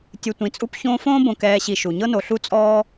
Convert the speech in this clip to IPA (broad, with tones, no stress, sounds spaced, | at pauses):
tʲ ɯ˨ tʷ ĩ˨ t͡sʼ u˥ p ç õː˦ f õː˥ b õ˨ k ɛː˨ ɕ i˨ ʃ u˩ ɲ ɤ˥ n o˨ ɬ u˥ t͡sʼ ɔː˥